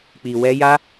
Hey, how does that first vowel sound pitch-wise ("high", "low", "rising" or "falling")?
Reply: low